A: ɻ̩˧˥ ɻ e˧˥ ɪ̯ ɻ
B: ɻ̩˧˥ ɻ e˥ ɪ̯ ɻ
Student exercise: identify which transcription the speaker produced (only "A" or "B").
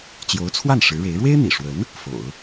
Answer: A